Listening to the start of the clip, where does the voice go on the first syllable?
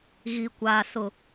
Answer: low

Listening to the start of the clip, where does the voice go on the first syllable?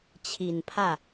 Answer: low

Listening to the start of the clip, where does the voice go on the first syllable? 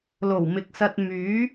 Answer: low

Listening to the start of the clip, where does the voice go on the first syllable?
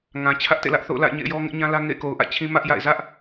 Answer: low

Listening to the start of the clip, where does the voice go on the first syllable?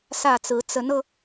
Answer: falling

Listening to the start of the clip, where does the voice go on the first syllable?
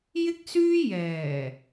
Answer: high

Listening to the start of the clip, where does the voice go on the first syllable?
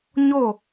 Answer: falling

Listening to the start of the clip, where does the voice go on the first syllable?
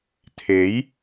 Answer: rising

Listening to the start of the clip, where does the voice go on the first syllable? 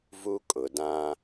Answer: high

